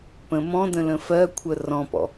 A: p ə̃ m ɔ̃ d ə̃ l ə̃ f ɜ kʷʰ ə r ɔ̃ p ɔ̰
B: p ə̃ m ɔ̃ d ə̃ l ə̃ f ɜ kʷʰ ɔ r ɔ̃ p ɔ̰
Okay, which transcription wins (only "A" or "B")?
A